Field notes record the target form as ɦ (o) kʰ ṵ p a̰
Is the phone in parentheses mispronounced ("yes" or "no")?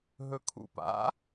yes